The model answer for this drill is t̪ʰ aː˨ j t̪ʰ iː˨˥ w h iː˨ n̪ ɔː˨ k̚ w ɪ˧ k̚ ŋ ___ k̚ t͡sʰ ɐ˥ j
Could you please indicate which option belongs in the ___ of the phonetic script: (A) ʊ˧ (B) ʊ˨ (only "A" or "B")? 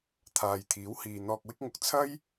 B